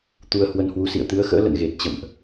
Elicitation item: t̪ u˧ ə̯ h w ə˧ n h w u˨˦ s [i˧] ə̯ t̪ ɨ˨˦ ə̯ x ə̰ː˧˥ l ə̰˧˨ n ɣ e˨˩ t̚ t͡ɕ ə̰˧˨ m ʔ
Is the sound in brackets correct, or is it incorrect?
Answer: incorrect